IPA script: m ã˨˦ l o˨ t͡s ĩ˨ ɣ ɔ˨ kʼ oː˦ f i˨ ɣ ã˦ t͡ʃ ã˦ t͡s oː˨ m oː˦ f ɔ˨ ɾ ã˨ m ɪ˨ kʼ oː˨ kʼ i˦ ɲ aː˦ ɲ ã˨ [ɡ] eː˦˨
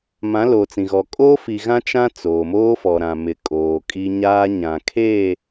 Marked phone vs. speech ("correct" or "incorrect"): incorrect